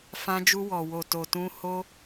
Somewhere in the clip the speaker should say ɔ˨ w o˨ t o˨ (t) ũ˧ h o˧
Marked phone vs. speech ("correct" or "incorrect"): correct